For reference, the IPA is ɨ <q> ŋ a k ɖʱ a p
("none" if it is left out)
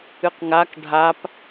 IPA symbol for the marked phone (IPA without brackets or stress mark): q